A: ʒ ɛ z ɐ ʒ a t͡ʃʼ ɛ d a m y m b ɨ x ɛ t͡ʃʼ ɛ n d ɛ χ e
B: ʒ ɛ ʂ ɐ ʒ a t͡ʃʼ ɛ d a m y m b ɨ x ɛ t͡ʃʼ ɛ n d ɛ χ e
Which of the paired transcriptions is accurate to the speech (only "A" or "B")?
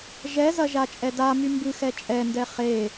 A